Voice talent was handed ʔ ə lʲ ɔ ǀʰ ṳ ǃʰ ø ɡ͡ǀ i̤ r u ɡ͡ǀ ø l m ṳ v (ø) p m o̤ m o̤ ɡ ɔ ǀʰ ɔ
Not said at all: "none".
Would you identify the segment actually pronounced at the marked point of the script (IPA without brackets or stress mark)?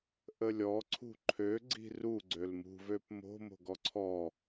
ø